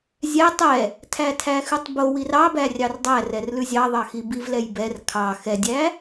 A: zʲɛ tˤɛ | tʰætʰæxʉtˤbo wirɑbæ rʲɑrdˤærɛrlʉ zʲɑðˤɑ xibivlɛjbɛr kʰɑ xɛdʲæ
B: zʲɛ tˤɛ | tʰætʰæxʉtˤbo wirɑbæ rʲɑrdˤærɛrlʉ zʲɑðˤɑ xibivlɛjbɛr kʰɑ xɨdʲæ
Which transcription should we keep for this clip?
A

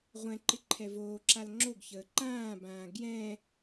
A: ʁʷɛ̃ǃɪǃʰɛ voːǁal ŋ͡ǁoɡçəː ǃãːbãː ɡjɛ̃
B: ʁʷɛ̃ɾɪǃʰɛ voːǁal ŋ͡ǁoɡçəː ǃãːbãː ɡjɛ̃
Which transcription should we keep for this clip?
A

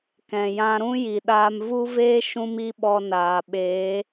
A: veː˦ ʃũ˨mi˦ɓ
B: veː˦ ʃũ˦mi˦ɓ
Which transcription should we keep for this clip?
B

